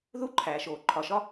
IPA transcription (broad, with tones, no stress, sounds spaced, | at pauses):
ð u˥ ǃʰ æː˩ ʃ oː˩ ǃʰ ɒ˩ ʃ ɒ˥